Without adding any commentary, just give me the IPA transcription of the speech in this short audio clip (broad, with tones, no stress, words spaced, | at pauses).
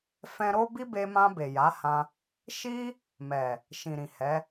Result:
fɛ̃˧ɾo˦ bi˦be˧mã˧ be˨ja˨˦hã˧ | ʃi˧ | mɛ˨ | ʃĩ˨ɾĩ˨hɛ˨˦